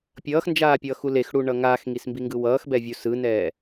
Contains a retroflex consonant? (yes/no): yes